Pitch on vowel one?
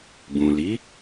low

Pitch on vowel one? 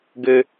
high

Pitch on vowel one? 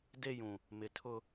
high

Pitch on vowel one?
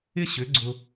high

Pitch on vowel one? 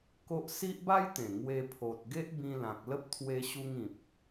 high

